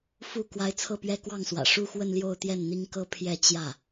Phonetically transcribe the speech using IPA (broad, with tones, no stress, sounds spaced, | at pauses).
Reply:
f u˥˩ k w a˧˥ ɪ̯ t͡sʰ ɤ˥˩ p ɥ ɛ˥ k w ɑ˥˩ ŋ s w ä̰˨˩ ʂ u˥˧ x w ə˥˧ n l j o˥˧ ʊ̯ t̪ j ɛ˥˩ n n̪ i˥ ŋ k ɤ˥ pʰ j ɛ˥˧ t͡ɕ j ä˥˩